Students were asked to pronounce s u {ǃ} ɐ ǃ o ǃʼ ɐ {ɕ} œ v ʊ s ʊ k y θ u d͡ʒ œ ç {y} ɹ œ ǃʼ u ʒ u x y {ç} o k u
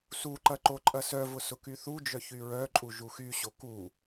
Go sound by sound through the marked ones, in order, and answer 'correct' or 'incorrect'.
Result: correct, incorrect: s, correct, incorrect: ɕ

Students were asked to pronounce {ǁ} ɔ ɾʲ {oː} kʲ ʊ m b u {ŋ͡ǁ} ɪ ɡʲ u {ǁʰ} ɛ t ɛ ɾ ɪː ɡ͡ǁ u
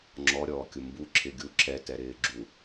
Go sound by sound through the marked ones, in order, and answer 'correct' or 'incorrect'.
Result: incorrect: ŋ͡ǁ, incorrect: ɔː, incorrect: ǁʰ, correct

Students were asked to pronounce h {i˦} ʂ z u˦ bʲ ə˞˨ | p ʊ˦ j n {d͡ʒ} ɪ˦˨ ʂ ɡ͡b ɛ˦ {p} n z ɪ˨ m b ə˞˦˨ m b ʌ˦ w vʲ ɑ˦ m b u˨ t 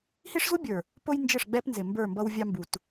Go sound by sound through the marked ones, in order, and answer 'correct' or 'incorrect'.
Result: correct, correct, correct

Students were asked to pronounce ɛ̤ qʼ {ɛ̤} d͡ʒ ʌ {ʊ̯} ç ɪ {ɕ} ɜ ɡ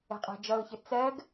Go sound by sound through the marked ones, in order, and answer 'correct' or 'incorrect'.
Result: incorrect: æ̤, correct, incorrect: t͡s

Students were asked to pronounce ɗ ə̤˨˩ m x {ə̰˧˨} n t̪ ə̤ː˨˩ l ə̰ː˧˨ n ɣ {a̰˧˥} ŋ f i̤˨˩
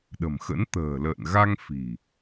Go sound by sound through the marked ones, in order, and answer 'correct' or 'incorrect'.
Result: incorrect: ə̰˧˥, incorrect: a˧

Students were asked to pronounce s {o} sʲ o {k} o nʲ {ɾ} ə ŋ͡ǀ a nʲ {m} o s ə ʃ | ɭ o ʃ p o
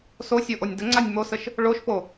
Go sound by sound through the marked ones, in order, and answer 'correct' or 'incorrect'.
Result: correct, incorrect: ʔ, incorrect: d, correct

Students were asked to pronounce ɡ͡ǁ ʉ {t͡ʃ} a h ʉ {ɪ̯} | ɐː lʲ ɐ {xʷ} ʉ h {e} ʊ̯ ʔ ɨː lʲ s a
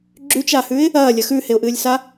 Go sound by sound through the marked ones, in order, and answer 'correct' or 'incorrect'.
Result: correct, correct, incorrect: x, correct

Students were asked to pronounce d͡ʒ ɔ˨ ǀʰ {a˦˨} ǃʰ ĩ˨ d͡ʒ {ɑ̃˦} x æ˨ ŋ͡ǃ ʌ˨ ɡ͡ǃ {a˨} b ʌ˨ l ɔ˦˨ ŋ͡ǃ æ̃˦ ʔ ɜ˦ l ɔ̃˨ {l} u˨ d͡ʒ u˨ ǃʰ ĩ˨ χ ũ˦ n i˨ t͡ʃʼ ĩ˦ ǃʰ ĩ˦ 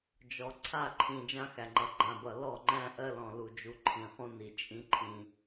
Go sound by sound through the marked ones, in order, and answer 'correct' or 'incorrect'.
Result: correct, incorrect: ã˦, incorrect: ã˨, correct

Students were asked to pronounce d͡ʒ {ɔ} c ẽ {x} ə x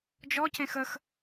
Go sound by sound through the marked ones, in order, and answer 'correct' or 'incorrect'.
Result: correct, correct

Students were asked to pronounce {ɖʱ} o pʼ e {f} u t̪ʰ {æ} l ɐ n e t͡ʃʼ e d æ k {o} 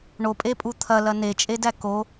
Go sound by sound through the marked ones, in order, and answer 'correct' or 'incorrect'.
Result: incorrect: ɳ, incorrect: pʼ, incorrect: ɐ, correct

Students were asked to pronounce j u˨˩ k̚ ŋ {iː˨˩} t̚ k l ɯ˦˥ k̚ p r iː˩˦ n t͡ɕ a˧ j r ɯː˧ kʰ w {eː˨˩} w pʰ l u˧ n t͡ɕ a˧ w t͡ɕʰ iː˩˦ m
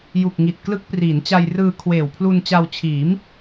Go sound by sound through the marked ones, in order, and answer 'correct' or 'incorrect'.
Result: incorrect: i˨˩, correct

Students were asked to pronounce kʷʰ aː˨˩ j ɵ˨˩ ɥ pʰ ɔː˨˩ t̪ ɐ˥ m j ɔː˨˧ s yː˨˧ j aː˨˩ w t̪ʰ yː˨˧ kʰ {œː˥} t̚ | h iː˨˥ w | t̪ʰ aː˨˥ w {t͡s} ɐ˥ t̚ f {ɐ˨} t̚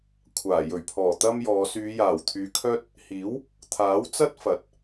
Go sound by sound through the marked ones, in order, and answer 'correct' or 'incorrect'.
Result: correct, correct, correct

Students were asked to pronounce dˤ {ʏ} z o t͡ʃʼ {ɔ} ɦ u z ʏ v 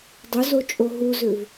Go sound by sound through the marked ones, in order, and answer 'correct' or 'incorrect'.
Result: correct, incorrect: o

